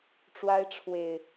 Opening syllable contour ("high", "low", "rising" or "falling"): high